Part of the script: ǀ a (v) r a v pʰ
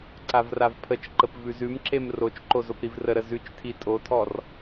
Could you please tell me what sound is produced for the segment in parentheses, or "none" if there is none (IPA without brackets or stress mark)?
v